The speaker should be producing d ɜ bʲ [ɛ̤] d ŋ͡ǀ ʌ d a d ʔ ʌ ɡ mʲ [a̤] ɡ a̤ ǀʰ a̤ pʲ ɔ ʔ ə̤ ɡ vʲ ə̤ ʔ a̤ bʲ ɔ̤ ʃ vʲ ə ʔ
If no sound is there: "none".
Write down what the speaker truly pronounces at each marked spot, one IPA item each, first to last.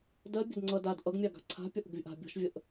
ə̤, a

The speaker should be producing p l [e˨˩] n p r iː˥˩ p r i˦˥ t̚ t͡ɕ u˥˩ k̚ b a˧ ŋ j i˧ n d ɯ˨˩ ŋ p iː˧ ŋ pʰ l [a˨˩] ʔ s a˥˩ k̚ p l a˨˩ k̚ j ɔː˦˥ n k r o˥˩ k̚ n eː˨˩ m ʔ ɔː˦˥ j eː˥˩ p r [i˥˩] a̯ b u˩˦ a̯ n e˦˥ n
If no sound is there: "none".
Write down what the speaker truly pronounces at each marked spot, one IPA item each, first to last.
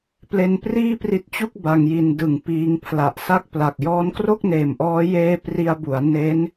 e˧, a˨˩, i˧

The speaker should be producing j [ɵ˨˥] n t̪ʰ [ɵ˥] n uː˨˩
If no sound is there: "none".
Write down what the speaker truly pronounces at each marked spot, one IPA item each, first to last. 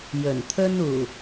ɵ˨˩, ɵ˥

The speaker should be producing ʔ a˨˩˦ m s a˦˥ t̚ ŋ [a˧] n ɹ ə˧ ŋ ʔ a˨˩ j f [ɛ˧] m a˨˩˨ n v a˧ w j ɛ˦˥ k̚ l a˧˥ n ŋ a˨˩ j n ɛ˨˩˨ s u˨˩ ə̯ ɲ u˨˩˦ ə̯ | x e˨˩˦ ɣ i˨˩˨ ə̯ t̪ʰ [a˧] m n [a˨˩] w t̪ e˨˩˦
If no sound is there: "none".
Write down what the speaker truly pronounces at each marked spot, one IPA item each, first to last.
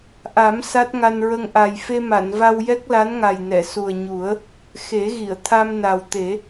a˧, e˧, a˧, a˨˩

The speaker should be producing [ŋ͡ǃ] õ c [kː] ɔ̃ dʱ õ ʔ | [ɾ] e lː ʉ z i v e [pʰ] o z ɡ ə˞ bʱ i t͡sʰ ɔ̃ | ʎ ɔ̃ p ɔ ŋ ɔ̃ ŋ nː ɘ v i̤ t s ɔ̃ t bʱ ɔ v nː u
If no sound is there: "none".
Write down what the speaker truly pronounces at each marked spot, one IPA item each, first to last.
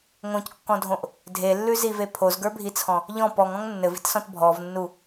ŋ, kː, dʱ, pʰ

